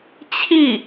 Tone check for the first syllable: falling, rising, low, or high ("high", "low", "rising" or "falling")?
falling